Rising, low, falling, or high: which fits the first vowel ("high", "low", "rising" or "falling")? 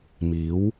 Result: rising